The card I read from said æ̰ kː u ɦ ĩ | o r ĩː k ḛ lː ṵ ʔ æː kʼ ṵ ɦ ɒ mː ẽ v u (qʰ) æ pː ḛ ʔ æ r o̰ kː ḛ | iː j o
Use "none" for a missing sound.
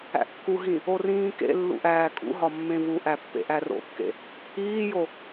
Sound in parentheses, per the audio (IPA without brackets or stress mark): ʔ